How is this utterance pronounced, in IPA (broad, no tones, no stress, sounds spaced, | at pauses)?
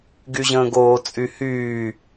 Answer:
ɡ y ʑ ə̃ː ɡ oː t͡sʼ y h yː